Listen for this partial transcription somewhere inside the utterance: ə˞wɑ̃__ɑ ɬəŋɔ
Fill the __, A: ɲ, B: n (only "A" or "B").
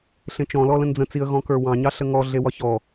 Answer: A